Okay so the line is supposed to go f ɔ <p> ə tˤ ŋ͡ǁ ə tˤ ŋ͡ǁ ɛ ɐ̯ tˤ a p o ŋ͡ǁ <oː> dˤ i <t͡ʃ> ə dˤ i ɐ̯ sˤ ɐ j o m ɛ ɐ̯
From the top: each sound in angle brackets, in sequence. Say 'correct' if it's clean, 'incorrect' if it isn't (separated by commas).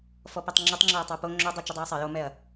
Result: correct, incorrect, correct